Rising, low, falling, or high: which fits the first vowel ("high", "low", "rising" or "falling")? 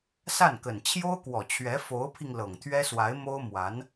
falling